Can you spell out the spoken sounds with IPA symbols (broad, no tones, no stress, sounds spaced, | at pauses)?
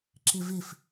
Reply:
ǁ ɪ v ɪ f